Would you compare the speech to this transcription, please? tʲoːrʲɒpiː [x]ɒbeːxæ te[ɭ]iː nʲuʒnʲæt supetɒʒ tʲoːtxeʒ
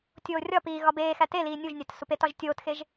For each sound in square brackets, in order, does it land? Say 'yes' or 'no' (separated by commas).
no, no